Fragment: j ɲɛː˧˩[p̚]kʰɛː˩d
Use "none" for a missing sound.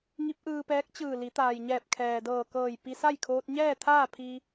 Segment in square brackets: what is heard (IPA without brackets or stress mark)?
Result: p̚